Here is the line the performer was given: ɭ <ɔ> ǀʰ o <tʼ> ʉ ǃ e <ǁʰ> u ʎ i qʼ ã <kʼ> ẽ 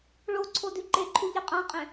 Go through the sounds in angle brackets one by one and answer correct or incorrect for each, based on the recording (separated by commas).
incorrect, incorrect, incorrect, incorrect